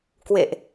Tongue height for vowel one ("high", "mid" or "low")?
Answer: mid